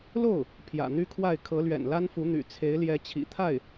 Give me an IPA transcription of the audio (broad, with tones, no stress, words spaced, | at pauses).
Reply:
lo˥˩ʊ̯ | pʰjä̰˨˩n̪y˥kʰwa˥˩ɪ̯ kʰɤ˧˥lɥɛ̰˨˩nla˥nfu˧˥ n̪y̰˨˩t͡sʰe˧˥ɪ̯ljɛ˧˥ t͡ɕʰḭ˨˩t̪ʰa˥˩ɪ̯